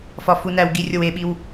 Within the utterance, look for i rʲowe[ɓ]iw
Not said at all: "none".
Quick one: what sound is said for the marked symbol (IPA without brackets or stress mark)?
ɓ